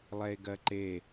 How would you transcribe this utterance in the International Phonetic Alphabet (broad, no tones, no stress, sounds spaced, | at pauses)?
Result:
lˠ ɛ e̯ ɡ ɜ ǃ e